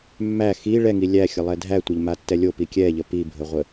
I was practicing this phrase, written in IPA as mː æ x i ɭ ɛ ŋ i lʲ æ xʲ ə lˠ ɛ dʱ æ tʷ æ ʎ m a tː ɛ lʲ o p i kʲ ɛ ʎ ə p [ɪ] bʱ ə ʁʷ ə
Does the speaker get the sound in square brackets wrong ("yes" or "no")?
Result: yes